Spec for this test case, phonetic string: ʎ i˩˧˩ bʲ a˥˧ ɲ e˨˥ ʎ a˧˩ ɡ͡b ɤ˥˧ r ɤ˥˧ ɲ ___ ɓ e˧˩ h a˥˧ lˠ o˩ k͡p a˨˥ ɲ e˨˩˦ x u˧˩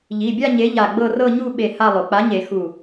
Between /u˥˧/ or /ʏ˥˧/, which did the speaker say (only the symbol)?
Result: u˥˧